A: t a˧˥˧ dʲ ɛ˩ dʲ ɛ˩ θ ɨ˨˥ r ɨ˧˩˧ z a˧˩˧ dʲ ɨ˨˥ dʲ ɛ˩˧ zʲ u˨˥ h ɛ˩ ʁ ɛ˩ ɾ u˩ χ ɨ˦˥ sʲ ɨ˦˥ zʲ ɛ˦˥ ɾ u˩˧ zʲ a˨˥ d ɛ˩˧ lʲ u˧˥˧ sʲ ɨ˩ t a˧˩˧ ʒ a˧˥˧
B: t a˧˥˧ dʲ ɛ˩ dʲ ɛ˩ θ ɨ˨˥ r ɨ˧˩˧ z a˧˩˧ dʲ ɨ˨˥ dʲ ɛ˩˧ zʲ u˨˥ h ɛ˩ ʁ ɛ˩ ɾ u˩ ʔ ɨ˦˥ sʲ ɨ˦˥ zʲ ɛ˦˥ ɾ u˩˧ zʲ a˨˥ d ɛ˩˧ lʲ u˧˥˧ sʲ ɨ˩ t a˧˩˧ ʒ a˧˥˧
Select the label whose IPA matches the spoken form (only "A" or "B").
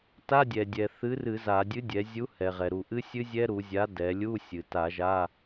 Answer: B